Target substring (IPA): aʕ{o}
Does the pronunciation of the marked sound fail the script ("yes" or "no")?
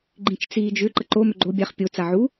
yes